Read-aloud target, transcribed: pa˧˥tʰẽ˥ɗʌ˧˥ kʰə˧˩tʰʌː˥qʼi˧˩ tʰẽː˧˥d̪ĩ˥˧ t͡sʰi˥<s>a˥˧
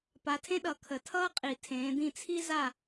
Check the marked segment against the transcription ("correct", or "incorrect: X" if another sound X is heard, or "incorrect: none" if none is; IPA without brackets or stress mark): incorrect: z